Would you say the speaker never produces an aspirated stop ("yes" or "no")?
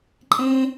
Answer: yes